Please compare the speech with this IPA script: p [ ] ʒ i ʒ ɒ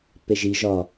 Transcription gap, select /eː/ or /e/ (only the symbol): e